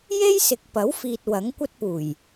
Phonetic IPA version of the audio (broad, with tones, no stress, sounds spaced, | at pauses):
j e˥ j s ɪ˨ k̚ p ɐ˨˥ w f iː˧ t̚ w ɐ˨˥ ŋ kʷ ɐ˥ t̚ p uː˨˩ j